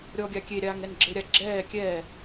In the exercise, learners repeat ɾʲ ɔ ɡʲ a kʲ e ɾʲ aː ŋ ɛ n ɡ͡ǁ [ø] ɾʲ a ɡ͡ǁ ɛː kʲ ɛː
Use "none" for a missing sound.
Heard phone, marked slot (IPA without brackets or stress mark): ɘ